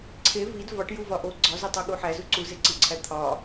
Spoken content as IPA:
ǀʰ e v i d v ɒ ʈ j u v ɒ ʔ o ɡ͡ǀ ɒ z u tˤ o ɠ u ħ æ z u ǀ u z e ǀ i ǀʰ æ t̪ʰ ɒ

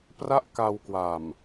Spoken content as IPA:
p r a˥˩ ʔ k a˧ w k w a˨˩ m

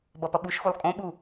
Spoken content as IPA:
b ʌ p ʌ ɓ u ʃ x u lˠ kʼ õ ɓ u

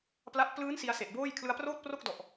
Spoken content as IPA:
p l a˦˥ ʔ p l ɯː˦˥ n s i˧ a̯ s e˨˩ ʔ b oː˥˩ j kʰ l ɯ˧ a̯ p r oː˥˩ t̚ p r o˥˩ k̚ d ɔ˨˩ ʔ

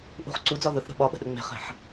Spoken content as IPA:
ʔ ṳ χ ǀ u d͡z ɒ ð ɵ θ ɾ ə̤ ɓ ɒ ɓ ə̤ ɗ ɵ ŋ͡m e̤ χ e̤ ħ

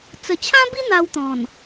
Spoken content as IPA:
t͡s ə˨˩ t͡ɕʰ ã˦ b i˦ n̪ a˧ w t̪ ɔ̃˨˩ n

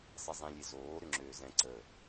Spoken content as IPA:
sˤ i zˤ ĩ lʲ e z oː ɾ ʏ ŋ͡ǁ øː z ɛ̃ ǀ ə

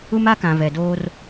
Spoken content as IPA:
u˦ m a˦ k ã˨ v ɛ˨ d oː˦ r

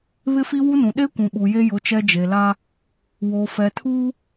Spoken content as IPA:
β ɪ˦ f i˦ w u˦ n ũ˨ ɗ e˦ kʷ ũ˨ ɓ u˨ j e˦ j ʊ˨˦ t͡ʃ ɛ˦ d͡ʒ e˨ l a˦ | w o˨ f ɛ˨ tʰ uː˦

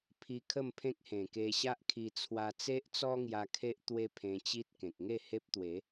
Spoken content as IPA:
pʰ i˧ kʰ ə˥˧ m pʰ ẽ˦ k̚ h ẽ˨˩ k e˧ ɕ a˦ ʔ kʰ i˧ t͡sʰ w a˧ t͡s e˦ ʔ t͡s ɔ˦ ŋ j a˧ kʰ e˦ ʔ t̪ w e˦ pʰ ẽ˧ t͡ɕ i˦ t̚ k ẽ˨ k̚ ŋ e˥˧ h e˦ p̚ t̪ w e˨˦

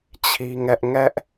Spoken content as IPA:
t͡ɕʰ i˦ ŋ ɛ˦ ʔ ŋ ɛ˦ ʔ

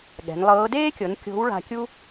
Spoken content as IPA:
ɠ ɛ̤˩˧ n lˠ ɤː˧˥ d eː˥ kʲ ɤ˩˧ n kʲ o̤˧˥ w ɭ a̤˧ kʲ u˥

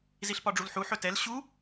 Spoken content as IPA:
z i ɬ p ɒ ɖ͡ʐ u l ħ u ħ ɵ t ɛ l ɕ u

